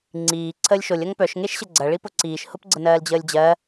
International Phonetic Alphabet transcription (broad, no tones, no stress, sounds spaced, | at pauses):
ŋ͡ǀ iː ǀʰ əː lʲ ʃ o lʲ ɐ ŋ p œ ʃ ŋ e ʃ ɕ ə ɡ͡ǀ ɐ ɭ i p ʊ ǀ iː ʃ h ʊ p ɡ͡ǀ ə n ɜː l d͡ʑ əː lʲ d͡ʑ ɜ